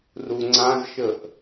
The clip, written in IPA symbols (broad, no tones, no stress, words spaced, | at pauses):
ruŋ͡ǀãzʃəʔ